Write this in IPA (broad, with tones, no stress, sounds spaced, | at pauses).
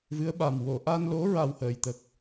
v ɨ˧˥ ə̯ ɓ a˨˩ m w o˨˩˨ ʔ a˧ n l o˧˥ ɹ a˨˩ w h əː˨˩˨ j t̪ ə˨˩ k̚